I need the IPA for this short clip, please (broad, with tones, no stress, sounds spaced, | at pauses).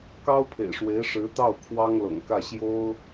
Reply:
k ɑ˥ ʊ̯ pʰ ḛ˨˩ ɪ̯ ʂ w e˧˥ ɪ̯ ʂ ɻ̩˧˥ t̪ ɑ˥˩ ʊ̯ kʰ w ɑ˥ ŋ l ɤ̰˨˩ ŋ k ä˥˩ ɕ j o˥ ʊ̯